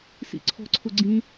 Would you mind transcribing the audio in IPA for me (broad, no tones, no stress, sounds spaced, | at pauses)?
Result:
s ḭ ǀʰ ɔ̤ ǀʰ ʊ ɡ͡ǀ ĩ